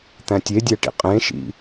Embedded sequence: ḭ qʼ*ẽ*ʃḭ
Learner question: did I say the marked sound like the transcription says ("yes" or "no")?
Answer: yes